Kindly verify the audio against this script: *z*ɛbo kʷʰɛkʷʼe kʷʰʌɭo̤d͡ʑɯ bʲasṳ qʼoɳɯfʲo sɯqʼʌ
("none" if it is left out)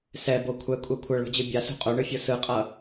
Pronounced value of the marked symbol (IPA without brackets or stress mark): s